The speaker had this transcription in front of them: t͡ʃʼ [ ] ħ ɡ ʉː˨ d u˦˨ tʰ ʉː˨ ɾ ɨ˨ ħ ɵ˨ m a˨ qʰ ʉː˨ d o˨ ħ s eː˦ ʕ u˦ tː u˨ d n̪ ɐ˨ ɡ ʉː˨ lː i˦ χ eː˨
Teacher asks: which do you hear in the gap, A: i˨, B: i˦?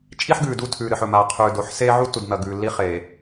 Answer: B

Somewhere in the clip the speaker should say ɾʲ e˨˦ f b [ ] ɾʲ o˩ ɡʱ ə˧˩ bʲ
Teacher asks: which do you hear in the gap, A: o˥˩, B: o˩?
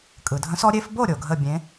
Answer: A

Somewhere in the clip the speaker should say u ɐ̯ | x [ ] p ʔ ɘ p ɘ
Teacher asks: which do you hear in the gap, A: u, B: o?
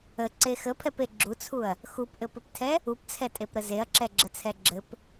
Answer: A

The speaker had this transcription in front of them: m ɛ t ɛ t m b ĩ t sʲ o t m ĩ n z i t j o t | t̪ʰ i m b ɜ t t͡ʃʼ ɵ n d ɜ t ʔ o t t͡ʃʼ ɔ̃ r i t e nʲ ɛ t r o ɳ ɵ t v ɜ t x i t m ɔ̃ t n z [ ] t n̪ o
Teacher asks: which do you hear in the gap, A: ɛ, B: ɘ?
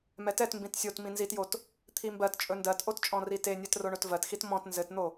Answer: B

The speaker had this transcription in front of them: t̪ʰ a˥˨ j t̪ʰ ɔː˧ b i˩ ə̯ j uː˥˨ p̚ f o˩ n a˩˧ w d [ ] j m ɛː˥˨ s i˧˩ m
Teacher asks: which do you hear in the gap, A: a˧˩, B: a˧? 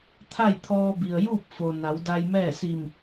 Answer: B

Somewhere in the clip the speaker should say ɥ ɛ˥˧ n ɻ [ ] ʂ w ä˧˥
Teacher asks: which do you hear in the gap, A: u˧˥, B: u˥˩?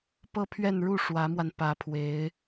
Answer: B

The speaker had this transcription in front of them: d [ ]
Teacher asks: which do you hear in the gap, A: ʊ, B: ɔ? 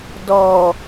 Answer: B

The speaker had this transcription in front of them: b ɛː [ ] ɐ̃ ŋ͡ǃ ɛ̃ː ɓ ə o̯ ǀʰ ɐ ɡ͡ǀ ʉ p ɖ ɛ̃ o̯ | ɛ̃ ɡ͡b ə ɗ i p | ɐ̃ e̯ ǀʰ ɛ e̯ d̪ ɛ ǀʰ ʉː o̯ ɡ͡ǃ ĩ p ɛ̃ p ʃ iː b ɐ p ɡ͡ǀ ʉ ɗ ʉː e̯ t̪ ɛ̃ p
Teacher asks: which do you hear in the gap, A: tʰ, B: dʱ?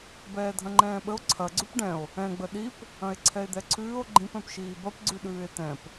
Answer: B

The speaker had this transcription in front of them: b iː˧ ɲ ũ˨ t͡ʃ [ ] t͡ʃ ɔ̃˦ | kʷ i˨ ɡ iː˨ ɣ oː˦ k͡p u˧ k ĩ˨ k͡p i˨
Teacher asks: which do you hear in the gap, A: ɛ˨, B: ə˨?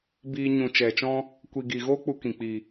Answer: A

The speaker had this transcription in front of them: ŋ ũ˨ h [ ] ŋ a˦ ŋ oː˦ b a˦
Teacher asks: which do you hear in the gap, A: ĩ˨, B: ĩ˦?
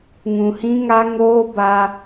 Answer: B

